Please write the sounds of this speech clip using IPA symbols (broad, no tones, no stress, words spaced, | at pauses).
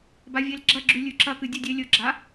bavʲelɡ͡ǁɐɡ͡ǁʉ lʲʉǁɐkɨ dʲɨdʲelʲɵɡ͡ǁa